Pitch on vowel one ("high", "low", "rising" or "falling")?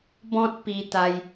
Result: high